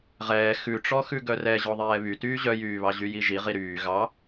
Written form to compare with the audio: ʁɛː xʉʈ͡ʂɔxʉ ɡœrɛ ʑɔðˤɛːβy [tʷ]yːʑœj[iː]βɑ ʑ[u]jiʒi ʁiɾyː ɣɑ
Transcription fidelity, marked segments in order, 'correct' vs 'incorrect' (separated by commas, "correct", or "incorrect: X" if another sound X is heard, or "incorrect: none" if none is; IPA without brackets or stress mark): incorrect: t, incorrect: yː, incorrect: y